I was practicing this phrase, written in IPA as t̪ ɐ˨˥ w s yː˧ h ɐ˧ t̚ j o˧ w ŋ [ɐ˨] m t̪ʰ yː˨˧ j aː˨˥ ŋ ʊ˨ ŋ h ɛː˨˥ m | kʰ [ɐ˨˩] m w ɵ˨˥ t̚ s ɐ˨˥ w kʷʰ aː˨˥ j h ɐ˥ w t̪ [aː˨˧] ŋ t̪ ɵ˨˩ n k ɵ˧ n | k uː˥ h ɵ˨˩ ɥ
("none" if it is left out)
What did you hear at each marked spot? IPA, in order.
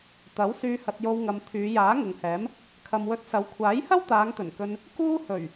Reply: ɐ˨, ɐ˨, aː˨˧

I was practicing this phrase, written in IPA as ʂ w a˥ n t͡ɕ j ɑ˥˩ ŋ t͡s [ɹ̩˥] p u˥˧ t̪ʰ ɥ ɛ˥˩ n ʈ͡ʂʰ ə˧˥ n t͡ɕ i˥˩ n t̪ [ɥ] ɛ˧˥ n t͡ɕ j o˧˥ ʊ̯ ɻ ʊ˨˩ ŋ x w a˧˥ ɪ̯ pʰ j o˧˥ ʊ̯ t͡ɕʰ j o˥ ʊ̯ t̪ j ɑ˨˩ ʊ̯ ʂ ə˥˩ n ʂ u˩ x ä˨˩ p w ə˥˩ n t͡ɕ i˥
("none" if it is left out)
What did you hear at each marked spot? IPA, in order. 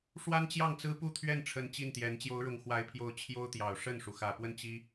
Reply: ɹ̩˥, j

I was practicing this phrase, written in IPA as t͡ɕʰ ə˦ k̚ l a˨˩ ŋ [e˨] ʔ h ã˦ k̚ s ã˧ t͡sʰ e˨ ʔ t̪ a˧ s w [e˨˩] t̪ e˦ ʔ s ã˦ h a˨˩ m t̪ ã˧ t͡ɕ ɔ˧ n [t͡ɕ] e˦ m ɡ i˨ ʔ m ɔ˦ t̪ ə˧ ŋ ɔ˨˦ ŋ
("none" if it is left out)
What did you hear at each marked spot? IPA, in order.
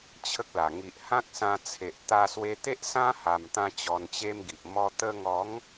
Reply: i˨, e˧, t͡ɕ

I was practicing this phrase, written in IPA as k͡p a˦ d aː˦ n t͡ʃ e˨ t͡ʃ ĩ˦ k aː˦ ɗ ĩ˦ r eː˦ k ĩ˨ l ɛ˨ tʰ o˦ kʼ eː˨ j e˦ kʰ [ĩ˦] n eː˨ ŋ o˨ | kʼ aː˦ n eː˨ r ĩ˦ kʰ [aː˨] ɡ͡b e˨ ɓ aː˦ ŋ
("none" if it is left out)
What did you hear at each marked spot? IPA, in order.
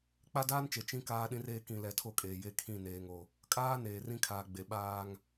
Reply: ĩ˦˨, aː˨

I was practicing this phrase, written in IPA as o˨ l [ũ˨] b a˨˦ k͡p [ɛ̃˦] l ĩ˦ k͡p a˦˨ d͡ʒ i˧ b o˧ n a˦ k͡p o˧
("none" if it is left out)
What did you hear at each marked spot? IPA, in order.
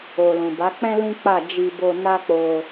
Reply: ũ˨, ɛ̃˦

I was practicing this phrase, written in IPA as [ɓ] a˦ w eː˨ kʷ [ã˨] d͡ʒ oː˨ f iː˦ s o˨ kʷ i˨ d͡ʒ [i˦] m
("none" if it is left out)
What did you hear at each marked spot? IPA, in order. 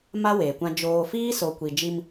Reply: m, ã˦, i˦

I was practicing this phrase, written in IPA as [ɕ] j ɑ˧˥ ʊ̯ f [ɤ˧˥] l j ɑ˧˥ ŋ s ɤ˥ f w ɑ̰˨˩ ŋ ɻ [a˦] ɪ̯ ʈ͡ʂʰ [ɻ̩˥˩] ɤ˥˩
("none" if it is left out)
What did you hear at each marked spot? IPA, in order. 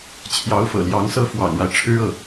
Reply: t͡ɕʰ, ɤ̰˨˩, a˦, ɻ̩˥

